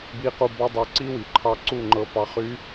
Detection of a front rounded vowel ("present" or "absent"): present